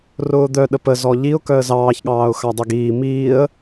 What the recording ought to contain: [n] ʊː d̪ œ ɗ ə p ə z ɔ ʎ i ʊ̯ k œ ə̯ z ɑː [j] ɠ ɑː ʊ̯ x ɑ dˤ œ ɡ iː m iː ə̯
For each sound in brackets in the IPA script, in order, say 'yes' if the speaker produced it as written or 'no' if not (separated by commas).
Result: no, no